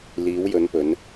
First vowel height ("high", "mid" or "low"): high